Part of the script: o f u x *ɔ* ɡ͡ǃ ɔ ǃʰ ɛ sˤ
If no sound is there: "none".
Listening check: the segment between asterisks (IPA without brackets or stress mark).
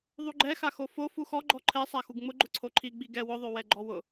ɔ